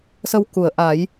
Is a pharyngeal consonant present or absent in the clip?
absent